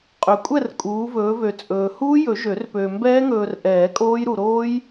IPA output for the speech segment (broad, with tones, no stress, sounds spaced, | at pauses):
qʼ ø˨ kʷʼ ɛ˥˧ r kʼ uː˨˦ v ɵː˨˦ v ø˨ t͡sʼ ɵː˨ h uː˦˥ j ɵ˨˩˦ ʒ ø˨˩˦ r p øː˨ m b ɛː˦˥ ŋ ɵː˨ r ʔ ɛː˨˩˦ kʼ oː˦˥ j ɾ u˨ ɾ oː˦˥ j